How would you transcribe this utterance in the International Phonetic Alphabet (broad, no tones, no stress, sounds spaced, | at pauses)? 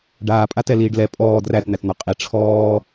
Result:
ɖ aː pʼ a t ɛ l iː ɖ l ɛ pʼ ɔː d r æ t n̪ æ t n̪ ɔ qʼ i ʈ͡ʂʰ ɔː